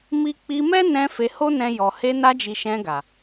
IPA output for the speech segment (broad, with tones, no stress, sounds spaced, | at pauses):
m i˦ k͡p i˧ m ɛ˦ n ɛ̃˧ f e˧ h o˦ n ɛ̃˧ j ɔ˨ h e˧ n a˧ d͡ʒ i˨ ʃ ɛ̃˧ ɡ a˨